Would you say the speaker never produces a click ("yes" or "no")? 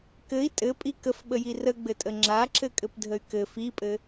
no